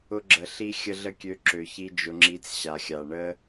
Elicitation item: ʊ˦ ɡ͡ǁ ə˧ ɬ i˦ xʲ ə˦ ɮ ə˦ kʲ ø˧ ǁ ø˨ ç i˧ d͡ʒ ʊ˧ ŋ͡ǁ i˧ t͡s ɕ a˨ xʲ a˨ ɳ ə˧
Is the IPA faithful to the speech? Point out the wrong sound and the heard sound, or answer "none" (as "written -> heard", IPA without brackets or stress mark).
none